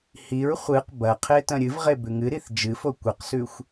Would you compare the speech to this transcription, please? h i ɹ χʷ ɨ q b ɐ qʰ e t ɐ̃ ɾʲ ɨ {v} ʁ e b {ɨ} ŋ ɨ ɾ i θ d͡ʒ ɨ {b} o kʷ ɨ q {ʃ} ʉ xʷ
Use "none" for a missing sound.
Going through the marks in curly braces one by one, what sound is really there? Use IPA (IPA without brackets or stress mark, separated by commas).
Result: v, ʉ, f, s